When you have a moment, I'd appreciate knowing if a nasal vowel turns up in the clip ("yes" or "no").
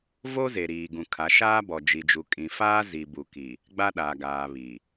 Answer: yes